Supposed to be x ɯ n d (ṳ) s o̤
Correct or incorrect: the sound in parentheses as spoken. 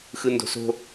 incorrect: o̤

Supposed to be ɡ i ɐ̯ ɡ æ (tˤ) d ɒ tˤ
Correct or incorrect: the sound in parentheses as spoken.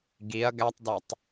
correct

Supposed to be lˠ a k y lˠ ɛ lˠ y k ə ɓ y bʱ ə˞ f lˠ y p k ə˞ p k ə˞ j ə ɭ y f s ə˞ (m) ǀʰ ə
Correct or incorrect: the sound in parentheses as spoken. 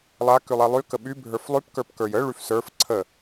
incorrect: f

